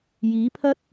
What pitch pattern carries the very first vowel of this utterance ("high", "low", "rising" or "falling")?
rising